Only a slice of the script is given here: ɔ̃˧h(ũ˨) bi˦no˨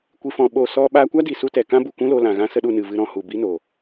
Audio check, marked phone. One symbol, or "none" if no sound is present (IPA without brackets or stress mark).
u˨